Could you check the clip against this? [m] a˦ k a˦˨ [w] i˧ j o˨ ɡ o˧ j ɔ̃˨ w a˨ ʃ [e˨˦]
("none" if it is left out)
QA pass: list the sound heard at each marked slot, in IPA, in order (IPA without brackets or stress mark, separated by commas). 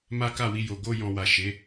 m, w, e˨˦